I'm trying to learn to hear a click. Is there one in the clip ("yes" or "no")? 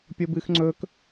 yes